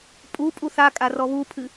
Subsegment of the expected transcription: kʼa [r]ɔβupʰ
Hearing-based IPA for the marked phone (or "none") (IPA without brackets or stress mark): r